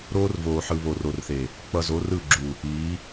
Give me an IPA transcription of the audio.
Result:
ɾ oː˦ r v oː˨ ħ ɯ˨ β o˨ r o˨ r θ e˨ | k͡p ʌ˨ z o˨˦ r ɯ˦˨ ɡ͡ǁ u˨ | iː˨˦

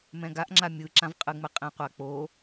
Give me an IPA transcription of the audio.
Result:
m ɛ̃ ɡ a ʔ ŋ͡ǁ a mʲ ɯ ǁ ã v qʼ ɯ ŋ͡m ɛ qʼ ẽ qʷ a k͡p o

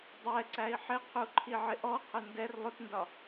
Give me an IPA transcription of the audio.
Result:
dˤ ɛ ǀ æ i̯ ħ ɪ qʰ u ǃʰ i ʕ ɪ ʔ ɔ qʰ ʊ n d ɛ r lˠ ʊ t n d ɒ

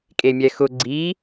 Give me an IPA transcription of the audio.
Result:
kʼ e mʲ ɛ x ʊ ɡ͡ǀ i

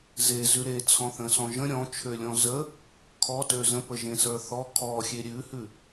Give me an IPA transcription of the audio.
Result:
z e z ʉ ɾ e t͡sʰ ɔ̃ θ ə̃ s ɔ̃ ʒ ə̃ ɾʲ ɔ̃ t͡ʃʰ ø lʲ ɔ̃ z ə | kʰ ɔ t ø z ə̃ p ə ʒ ẽ s ə˞ θ ɔ kʰ ɔ xʲ e ɾʲ ʉ h ʉ

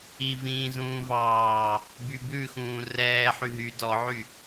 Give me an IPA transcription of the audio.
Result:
i v ĩː z ũː v ɑː | b y b ʉ x ũː r ɛː ħ y ɦ y d ɔ ʕ y

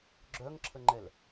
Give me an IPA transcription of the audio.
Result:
ɡ͡ǁ œ ŋ ǁʰ ə ŋ͡ǃ ɛ l

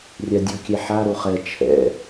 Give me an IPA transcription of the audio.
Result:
rʲ a dʲ o kʲ ɛ ħ a ɾ o χ ɛ t͡ʃʰ ɛ̰

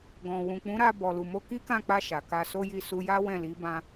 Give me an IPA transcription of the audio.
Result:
ɡ ɔ̃˨ w ũ˨ k͡p ũ˨˦ ɾ a˧ b ɔ˨ l u˨ m o˧ k i˦ k ã˦˨ k͡p a˧ ʃ a˨ k a˧ s o˦ j i˦˨ s u˧ j a˦ w ɛ̃˦˨ l i˨˦ b ã˦

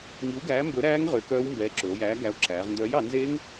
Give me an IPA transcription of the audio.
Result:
ŋ i˨˥ w ɡ æː˨˥ m b ɵ˨˥ ɾ æː˦˥ ŋ ʁ ø˨˥ k œː˦˥ w m b ɛː˨˥ ǁ ɵ˩˧ o̯ j æː˨˥ ɡ æ˨˥ o̯ ǁ æː˩˧ ʁ n d œː˨˥ j ɑ˩˧ n z e˦˥ ŋ

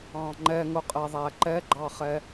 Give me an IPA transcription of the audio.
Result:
ɑ̃ ŋ͡ǃ ɛ ŋ ʊ qʼ ɛ ðˤ æ ǃ ɛ ɡ͡ǃ ɑ χ ɛ

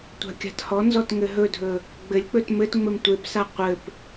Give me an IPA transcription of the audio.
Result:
tʷ a̤ kʲ a̤ t h ɔ n z ɔ t ŋ ɘ ɦ ɵ dʱ ɵ | ɡ͡b ɘ lʲ k͡p ɵ t m ɘ t ŋ͡m ɘ m tʷ e p s a qʷ ɘ p

